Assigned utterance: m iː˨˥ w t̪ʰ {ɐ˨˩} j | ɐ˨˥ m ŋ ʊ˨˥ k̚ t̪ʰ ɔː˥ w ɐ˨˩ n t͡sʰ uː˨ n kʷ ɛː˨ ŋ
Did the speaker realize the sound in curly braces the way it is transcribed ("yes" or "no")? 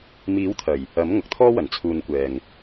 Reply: yes